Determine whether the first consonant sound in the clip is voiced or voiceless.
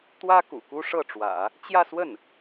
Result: voiceless